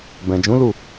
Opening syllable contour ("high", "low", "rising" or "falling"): low